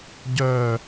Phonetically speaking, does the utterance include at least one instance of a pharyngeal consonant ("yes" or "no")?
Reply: no